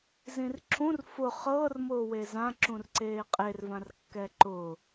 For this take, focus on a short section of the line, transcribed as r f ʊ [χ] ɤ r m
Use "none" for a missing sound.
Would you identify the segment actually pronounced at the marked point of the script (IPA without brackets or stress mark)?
χ